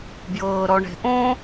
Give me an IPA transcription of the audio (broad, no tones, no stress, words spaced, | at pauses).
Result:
bjɤːɾɔɳe̤ʔõ